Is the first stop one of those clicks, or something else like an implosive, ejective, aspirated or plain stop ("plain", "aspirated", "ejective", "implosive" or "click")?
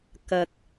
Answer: plain